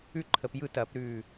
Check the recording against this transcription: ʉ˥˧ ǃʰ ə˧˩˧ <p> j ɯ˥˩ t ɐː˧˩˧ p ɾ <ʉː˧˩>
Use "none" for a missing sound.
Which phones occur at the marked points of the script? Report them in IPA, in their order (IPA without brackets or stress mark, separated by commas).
p, ʉː˧˩